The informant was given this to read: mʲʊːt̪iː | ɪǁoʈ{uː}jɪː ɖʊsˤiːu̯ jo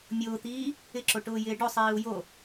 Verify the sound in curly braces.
incorrect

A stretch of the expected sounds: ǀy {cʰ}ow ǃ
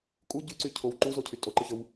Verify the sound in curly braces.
correct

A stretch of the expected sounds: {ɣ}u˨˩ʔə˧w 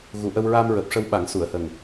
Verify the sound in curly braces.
correct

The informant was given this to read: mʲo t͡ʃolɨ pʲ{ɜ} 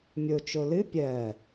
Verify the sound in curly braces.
correct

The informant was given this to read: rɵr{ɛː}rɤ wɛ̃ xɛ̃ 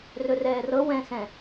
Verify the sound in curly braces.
correct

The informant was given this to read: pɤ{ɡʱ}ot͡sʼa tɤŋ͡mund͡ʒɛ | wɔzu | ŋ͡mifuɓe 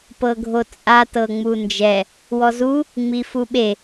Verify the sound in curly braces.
correct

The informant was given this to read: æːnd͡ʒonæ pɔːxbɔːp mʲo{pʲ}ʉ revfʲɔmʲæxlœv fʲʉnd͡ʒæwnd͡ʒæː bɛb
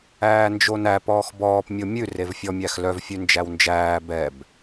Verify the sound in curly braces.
incorrect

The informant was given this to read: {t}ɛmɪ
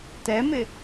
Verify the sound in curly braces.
correct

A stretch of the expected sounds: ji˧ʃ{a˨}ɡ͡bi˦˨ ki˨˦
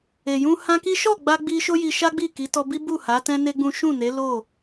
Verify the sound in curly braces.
incorrect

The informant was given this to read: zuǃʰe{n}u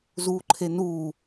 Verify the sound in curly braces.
correct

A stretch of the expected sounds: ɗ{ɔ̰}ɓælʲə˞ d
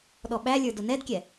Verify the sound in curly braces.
incorrect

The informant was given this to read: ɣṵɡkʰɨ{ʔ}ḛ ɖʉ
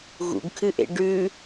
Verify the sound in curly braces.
correct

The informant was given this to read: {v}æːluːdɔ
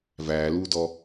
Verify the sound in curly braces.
correct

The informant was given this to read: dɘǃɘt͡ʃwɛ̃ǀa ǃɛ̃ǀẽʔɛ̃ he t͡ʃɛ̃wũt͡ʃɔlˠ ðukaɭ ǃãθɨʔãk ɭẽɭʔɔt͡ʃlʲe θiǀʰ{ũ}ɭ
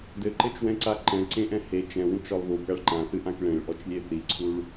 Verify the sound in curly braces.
incorrect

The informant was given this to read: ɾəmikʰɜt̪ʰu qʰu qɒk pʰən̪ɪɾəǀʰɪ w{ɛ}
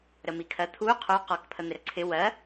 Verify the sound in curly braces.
incorrect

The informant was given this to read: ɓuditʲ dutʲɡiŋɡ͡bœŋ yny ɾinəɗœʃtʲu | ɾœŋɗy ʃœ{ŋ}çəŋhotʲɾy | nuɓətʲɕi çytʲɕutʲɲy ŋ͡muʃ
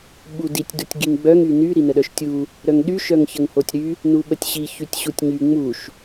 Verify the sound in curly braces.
correct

